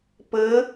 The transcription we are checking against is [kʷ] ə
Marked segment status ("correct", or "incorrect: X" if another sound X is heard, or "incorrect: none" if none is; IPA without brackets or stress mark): incorrect: p